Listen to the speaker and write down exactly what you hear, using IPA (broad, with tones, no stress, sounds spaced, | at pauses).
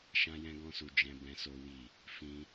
ʃ ã˦ j ɛ̃˦ ɡ ɔ̃˦ s u˧ d͡ʒ ɛ̃˦ b ɛ̃˦ s o˦ w i˦˨ | f ĩ˦